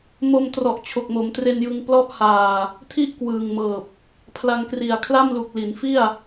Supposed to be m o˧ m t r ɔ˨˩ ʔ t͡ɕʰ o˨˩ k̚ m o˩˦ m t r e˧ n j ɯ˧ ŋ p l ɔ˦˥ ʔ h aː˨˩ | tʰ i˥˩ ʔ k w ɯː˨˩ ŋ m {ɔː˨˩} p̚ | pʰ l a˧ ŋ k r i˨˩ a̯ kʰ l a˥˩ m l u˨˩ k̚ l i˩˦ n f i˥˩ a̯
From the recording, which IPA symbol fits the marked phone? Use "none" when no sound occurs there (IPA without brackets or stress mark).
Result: ɤː˨˩